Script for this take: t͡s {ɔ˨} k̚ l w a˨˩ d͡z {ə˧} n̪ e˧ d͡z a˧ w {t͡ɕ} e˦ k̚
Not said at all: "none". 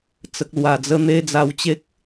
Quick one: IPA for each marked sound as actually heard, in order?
ə˨, ə˧, t͡ɕ

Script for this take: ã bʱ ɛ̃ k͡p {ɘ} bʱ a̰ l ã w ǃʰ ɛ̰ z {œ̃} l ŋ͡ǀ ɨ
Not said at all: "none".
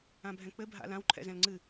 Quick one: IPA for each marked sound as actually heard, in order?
ɘ, ɛ̃

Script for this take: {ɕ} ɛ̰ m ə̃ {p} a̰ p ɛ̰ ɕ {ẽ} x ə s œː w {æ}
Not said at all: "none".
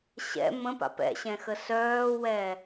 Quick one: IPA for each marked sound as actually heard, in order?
ɕ, p, ɛ̃, ɛ

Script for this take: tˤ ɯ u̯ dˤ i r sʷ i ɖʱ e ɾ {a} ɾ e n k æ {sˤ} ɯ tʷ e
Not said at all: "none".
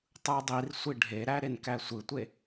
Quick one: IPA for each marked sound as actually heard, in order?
æ, sʷ

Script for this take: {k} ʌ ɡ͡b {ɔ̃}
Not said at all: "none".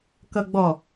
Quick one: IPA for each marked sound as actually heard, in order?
k, ɔ

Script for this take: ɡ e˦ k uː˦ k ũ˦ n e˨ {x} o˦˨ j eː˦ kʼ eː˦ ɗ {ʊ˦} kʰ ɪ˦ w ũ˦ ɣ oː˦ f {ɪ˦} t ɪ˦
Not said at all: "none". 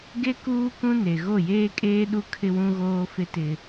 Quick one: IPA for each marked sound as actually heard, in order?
ɣ, u˦, ɪ˦

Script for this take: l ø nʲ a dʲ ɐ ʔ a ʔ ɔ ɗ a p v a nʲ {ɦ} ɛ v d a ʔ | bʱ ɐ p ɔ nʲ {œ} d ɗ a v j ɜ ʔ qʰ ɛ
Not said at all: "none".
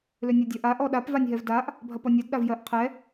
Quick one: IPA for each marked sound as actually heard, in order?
ɦ, ɛ

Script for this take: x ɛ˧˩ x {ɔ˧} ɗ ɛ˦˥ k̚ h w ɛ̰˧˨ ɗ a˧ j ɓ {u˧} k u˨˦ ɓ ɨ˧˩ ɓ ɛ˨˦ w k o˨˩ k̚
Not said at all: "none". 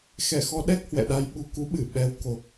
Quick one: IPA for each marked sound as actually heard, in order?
ɔ˧, u˧

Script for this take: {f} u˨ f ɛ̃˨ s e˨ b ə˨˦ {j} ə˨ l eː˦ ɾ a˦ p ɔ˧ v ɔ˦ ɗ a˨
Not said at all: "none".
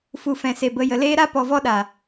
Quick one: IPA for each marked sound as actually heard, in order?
f, j

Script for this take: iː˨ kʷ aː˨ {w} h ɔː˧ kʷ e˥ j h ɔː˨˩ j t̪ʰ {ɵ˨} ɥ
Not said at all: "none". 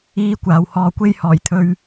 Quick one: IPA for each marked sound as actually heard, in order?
w, ɵ˧

